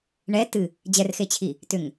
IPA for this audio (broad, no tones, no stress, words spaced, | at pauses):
ɳɛ tɨ | d͡ʑɛrxet͡ɕʰi | tʏŋ